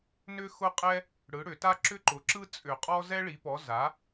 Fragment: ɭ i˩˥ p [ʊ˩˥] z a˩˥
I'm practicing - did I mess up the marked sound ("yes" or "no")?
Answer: yes